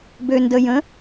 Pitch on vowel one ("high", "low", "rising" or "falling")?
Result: low